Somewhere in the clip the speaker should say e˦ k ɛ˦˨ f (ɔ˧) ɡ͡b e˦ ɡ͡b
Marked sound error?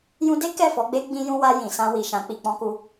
yes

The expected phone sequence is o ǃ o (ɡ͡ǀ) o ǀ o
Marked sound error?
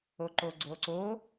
no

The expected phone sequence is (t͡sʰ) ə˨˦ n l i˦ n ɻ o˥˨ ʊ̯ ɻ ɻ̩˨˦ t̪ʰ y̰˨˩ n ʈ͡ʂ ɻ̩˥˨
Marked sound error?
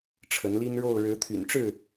yes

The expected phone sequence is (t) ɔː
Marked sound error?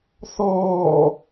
yes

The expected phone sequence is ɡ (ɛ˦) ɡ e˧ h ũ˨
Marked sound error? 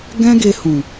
yes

